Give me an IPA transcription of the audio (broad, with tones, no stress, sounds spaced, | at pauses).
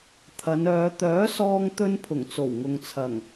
t̪ʰ ɐ˨˧ n œː˨˧ t̪ œː˨˥ s ɔː˧ ŋ t̪ ɵ˧ n pʰ ʊ˨˩ ŋ t͡s o˨˩ w ŋ ʊ˨ ŋ t͡sʰ ɐ˨˩ ŋ